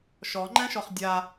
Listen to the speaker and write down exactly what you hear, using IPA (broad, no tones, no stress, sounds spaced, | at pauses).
ʃ ɔ ŋ͡ǃ ɛ̃ ʃ ɔ χ dʲ a